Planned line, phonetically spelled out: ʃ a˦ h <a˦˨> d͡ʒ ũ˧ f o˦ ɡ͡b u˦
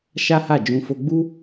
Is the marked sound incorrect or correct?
correct